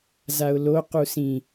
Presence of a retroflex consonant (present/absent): absent